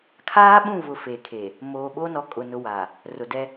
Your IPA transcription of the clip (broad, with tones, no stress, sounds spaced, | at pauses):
kʰ aː˦ ɓ ũ˦˨ v ʊ˨ f e˨ kʰ e˨ | m oː˨ ɓ o˦ n ɔ˨ kʼ ʊ˨ n ʊ˦ w a˨ | r ʊ˨ d ɛ˦